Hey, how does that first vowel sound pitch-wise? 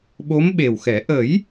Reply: rising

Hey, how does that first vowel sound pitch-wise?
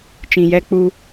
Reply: low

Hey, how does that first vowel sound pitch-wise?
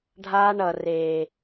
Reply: high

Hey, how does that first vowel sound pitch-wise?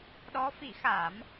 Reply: rising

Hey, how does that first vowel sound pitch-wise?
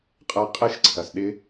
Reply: rising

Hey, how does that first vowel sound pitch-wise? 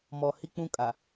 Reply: low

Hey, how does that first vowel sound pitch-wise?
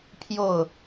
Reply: falling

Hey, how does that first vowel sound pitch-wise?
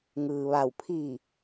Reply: low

